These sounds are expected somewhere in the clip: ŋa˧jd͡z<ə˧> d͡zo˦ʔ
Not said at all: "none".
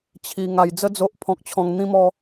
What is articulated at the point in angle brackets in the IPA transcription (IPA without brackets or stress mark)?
ə˦